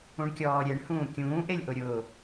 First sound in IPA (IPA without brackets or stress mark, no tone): ũ